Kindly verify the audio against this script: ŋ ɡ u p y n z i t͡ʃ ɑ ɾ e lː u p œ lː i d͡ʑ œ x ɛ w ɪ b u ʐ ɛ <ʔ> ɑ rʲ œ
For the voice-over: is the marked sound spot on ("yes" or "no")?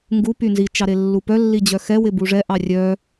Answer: yes